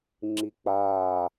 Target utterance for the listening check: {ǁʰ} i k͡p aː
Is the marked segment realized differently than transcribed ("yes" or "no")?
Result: yes